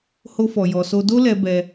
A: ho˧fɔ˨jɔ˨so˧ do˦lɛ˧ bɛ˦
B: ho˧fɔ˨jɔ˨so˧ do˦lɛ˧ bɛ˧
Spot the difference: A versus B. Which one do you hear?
A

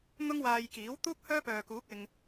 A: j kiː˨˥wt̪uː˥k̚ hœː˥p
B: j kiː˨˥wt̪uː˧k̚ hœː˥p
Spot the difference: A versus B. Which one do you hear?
A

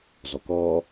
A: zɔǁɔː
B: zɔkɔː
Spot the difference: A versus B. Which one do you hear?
B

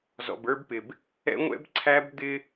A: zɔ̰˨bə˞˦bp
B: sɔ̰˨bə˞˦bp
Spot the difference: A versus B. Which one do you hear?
A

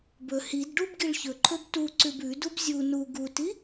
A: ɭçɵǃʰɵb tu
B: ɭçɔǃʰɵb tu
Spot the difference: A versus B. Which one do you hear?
A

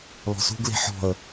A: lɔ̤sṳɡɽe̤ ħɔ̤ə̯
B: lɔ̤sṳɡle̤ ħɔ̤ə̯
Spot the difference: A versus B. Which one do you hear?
B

